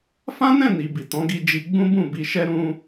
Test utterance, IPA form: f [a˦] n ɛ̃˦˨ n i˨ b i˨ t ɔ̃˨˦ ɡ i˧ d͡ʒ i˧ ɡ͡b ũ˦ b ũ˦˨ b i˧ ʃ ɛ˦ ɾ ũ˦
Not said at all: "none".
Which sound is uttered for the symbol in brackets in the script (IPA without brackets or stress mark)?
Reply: ã˦